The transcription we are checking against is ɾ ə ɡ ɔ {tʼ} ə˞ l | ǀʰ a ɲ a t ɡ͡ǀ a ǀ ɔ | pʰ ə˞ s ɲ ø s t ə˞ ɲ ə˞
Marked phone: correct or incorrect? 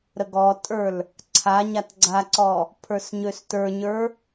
correct